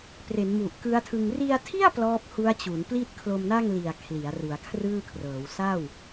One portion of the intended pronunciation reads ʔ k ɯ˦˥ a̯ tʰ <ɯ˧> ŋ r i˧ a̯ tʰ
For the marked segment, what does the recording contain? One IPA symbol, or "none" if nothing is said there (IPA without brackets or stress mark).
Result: ɯ˧